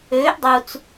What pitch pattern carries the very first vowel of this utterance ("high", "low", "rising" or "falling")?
rising